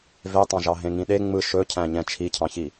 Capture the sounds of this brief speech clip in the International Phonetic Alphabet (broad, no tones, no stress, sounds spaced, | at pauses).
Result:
v e tˤ ɑ̃ ʒ ɑ ɦ ẽ ŋ ĩ ɗ e ŋ͡m ɯ ʃ ɵ cʰ æ̃ ɲ ɛ̃ t͡ʃʰ i cʰ ɑ̃ ç i